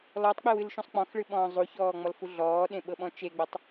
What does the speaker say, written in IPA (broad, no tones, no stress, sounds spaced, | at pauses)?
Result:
l ɔ tˤ k͡p e w ɨ l ʃ ũ sˤ k͡p ɔ̃ x ɭ ɨ ɓ ɔ̃ː zˤ u ç ɔː ŋ͡m ɔ l f u ɮ ɔː ɗ ẽ ɓ ɤ ɓ ɔ̃ t͡ʃ e ɡ͡b ɔ tˤ